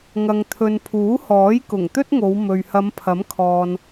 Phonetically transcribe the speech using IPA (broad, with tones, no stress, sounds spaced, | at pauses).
ŋ ɐ˨ ŋ t̪ʰ ɵ˨ n pʰ uː˨˥ h ɔː˨˥ j k ʊ˨˩ ŋ t̪ ɵ˥ t̚ ŋ o˨˧ w m ɵ˨ ɥ h ɐ˨˧ m pʰ ɐ˨˥ m kʰ ɔː˨ n